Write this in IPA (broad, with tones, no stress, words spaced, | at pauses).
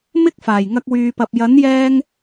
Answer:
mɪ˥k̚ faː˨˩jŋɐ˧k̚wyː˨pɐ˨p̚ jɐ˨˥njɛː˧ŋ